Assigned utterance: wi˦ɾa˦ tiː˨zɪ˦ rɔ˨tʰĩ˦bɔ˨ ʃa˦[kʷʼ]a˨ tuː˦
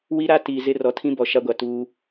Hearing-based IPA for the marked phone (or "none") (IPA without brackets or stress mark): ɡʷ